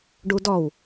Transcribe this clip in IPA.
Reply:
ɖ u d ɔ w

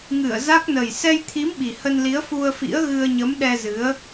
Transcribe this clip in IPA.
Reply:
ŋ ɨ˧˩ ə̯ z a˦˥ k̚ n ə˨˩ j s ɛ˧ j t̪ʰ i˨˦ m ɓ i˨˩ h ə˧ n l i˨˦ ə̯ f u˧ ə̯ f ḭ˧˥ ə̯ ɣ ɨ˧ ə̯ ɲ ə˨˦ m ɗ ɛ˧ z ɨ˨˦ ə̯

